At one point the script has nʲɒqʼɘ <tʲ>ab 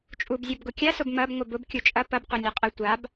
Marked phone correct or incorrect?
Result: incorrect